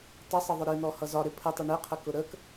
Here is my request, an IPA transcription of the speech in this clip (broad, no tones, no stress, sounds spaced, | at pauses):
tˤ ɪ sˤ ə ðˤ ʊ ɾ i n̪ ɔ h ʌ z ɒ ɾ ɪ pʰ ə tˤ ʊ ɳ ɪ qʰ ə k ʊ ɾ ə k